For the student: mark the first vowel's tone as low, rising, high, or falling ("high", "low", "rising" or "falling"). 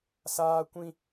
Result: high